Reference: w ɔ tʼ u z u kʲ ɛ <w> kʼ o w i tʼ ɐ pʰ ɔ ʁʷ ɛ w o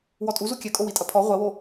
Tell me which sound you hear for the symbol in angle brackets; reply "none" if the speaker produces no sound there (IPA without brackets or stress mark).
none